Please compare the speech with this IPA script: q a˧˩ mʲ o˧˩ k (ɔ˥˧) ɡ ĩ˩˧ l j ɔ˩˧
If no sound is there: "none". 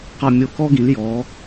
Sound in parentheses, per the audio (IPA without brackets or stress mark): ɔ˥